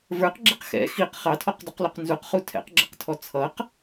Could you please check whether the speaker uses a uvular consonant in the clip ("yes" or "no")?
yes